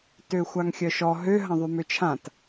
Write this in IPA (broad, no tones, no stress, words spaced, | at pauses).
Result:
tøxʷaŋxʲœʃɔ ɦø ɦɐ̃ðˤymøt͡ʃʰãt